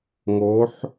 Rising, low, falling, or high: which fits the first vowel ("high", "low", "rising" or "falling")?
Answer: rising